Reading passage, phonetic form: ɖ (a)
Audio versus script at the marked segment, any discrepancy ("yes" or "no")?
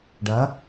yes